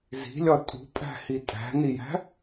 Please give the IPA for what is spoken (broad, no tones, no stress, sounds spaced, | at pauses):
z i̤ lʲ ɒ tʼ ṳ pʼ æ̤ h i tʼ æ̤ n i j æ̤